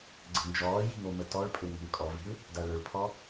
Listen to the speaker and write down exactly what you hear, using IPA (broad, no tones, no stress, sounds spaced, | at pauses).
ɡ͡ǀ ə̤ n d͡ʒ ɔː j i̤ ŋ o m ə t ɔ ɭ pʼ ø ŋ ə̤ ŋ kʼ ɔ v i̤ ɭ | d a ɭ ø ɭ pʰ ɔ